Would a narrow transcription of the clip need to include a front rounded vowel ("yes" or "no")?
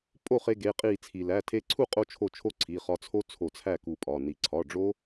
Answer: no